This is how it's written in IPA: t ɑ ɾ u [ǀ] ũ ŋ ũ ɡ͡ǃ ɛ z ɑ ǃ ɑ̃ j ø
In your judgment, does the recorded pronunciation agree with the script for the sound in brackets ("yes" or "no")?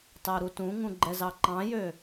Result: no